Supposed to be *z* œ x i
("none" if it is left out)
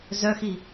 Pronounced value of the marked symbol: z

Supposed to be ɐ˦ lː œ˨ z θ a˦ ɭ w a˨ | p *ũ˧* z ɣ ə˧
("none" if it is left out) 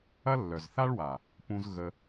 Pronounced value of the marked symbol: ũ˧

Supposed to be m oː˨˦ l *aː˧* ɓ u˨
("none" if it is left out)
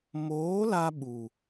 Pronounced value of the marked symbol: a˧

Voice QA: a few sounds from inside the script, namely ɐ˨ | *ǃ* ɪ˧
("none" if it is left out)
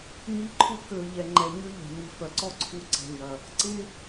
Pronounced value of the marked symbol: ǀ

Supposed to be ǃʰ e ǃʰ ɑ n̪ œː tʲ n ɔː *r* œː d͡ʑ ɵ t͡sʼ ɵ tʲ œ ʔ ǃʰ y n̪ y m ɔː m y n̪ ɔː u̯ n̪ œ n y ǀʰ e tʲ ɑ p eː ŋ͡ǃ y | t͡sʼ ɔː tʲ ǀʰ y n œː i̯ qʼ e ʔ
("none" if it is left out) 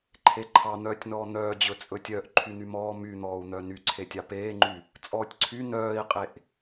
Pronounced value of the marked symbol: n̪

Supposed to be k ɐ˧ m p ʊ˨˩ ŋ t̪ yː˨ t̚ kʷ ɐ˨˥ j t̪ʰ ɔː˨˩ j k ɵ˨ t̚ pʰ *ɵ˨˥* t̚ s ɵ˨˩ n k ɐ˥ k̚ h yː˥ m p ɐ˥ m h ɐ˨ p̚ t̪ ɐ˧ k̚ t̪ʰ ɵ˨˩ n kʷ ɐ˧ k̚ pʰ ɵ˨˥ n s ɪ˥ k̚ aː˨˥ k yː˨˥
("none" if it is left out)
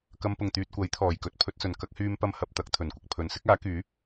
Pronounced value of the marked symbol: ɵ˧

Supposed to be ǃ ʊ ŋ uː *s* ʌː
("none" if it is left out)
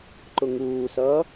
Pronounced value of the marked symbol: s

